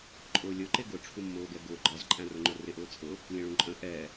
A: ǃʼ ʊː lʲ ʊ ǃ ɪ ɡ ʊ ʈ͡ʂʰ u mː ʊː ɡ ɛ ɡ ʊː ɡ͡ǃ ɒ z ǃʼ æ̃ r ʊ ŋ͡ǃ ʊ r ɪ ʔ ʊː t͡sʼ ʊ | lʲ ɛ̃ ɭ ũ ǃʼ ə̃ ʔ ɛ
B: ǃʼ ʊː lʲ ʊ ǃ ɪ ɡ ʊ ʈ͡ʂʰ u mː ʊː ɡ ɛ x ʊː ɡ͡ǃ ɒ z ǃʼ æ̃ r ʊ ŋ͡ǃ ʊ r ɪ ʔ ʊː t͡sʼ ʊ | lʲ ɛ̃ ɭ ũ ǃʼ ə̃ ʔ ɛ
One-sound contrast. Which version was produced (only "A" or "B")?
A